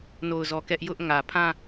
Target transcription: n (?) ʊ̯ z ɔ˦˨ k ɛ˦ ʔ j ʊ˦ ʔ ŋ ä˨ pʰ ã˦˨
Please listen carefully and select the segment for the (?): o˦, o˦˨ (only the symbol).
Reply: o˦˨